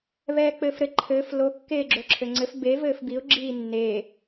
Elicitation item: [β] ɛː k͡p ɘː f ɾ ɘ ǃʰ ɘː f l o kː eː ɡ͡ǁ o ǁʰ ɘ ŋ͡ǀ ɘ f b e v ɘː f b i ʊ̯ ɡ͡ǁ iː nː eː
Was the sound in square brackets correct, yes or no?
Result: yes